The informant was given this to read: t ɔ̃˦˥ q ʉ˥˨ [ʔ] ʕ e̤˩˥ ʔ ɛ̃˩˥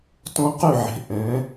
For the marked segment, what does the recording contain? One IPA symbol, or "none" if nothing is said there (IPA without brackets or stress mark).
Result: none